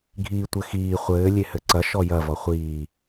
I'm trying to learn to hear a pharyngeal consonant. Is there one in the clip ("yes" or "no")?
no